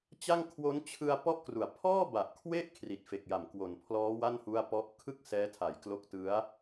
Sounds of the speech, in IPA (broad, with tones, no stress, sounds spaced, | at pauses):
t͡ɕ a˥˩ ŋ kʰ w o˦˥ n t͡ɕʰ ɯ˧ a̯ p ɔ˥˩ ʔ k r u˨˩ a̯ pʰ ɔː˥˩ b a˨˩ ʔ kʰ w e˥˩ ʔ kʰ r i˨˩ t̚ f e˨˩ k̚ j a˨˩ m k w o˨˩ n pʰ l ɔː˦˥ w a˥˩ n h u˥˩ a̯ p ɔ˥˩ ʔ kʰ ɯ˥˩ k̚ s ɛː˦˥ tʰ a˨˩ j k l o˦˥ k̚ t ɯ˦˥ a̯